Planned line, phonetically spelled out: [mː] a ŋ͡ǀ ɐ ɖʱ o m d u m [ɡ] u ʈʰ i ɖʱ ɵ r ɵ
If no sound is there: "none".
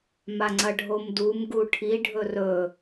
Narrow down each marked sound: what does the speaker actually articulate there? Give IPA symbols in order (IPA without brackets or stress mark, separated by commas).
m, ɡ